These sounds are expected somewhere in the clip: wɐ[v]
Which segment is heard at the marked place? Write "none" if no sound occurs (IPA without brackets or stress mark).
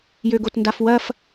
f